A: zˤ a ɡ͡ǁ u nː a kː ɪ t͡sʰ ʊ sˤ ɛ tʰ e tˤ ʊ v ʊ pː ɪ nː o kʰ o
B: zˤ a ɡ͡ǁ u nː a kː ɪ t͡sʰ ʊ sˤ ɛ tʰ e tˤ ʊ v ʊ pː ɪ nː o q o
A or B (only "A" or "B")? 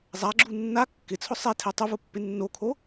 A